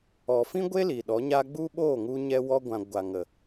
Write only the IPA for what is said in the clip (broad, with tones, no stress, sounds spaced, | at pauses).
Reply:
ɔ˨ f ĩ˦ ɡʷ e˦ l i˨ ɗ ɔ˨˦ ɲ a˦ ɡ͡b u˦ ɓ oː˦˨ ŋ u˧ ɲ ɛ˧ w ɔ˧ ɡʷ ã˨ ɡʷ a˨ ŋ ə˨